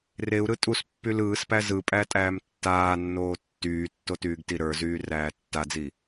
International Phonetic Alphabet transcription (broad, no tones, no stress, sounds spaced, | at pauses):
r e u̯ ɾ ɯ tʼ u s pː y l ɯː s p æ z ɯ pʼ æ tʼ æː m tː aː nː oː tː yː tː o t yː ɡ t i ɾ ə˞ z yː r æː tː a d͡z i